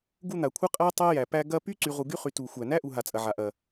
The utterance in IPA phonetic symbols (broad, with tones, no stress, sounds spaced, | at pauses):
ɡ u˦ n̪ a˩ kʷʰ ɐ˥ qʼ æ˥ tˤ ɛ˦ j æ˩ p æ˦ ɡ ɐ˥ p y˥ ǀ y˨ ʁ u˨ ɡ y˦ χ y˨ t u˩ xʷ æ˩ n æ˥ ʔ u˨ ɦ a˩ t͡sʼ ɐ˩ ʕ a˩ ʔ ɐ˩